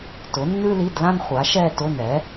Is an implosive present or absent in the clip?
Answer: absent